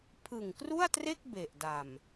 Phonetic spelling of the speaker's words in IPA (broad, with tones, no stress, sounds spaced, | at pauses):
pʰ ɯ˨˩ ŋ k r u˥˩ a̯ t r e˥˩ k̚ b e˨˩ ʔ d a˨˩ m